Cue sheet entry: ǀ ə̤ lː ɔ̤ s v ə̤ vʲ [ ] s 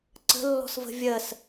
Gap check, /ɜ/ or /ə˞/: ɜ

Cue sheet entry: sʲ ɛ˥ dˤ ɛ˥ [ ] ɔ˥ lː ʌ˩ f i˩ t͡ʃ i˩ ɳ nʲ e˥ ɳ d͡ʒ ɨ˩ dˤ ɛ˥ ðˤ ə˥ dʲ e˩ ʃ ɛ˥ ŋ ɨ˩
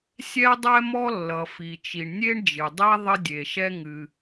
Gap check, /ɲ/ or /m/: m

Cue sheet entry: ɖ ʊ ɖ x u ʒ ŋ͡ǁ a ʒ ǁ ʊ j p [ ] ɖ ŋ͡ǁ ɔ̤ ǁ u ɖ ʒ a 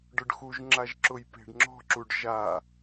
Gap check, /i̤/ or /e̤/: e̤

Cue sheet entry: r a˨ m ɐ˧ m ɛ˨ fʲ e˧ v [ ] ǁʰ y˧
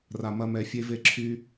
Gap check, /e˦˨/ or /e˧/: e˧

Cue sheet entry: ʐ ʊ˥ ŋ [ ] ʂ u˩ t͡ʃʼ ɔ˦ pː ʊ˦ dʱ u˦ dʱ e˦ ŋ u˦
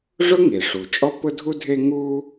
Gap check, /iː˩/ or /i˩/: i˩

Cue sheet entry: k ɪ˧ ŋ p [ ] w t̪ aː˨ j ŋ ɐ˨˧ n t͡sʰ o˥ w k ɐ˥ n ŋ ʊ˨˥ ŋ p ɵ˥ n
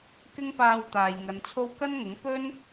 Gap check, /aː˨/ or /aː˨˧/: aː˨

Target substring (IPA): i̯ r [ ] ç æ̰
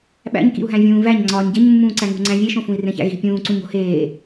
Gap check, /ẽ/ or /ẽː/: ẽ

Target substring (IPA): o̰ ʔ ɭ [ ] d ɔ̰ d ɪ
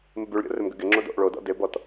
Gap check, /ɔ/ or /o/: o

